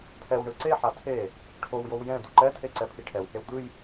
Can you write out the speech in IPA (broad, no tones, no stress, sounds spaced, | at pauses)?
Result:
pʰ ɛ w ɳ ɯ ǀ e ħ a tʰ e | ʈʰ o w j o w j ɛ̃ d u ǃ ɛ tʰ e ǀ ɛ pʰ i ʈʰ ɛ w h e w d̪ ɯ j